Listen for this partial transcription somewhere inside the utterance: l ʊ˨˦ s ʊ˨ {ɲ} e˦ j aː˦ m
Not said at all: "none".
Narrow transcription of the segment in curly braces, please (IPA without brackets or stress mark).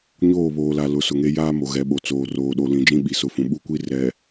ŋ